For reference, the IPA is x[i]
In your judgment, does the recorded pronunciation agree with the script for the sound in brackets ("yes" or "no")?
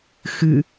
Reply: no